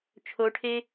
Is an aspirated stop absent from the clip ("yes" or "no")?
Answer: no